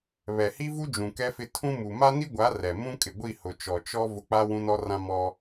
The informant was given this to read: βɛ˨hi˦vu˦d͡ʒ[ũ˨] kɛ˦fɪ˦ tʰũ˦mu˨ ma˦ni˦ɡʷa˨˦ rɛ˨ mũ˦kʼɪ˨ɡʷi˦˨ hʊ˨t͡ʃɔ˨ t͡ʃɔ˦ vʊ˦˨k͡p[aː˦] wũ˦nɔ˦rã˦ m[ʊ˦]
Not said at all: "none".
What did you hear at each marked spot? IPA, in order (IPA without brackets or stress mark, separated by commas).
ũ˨, a˦, ɔ˦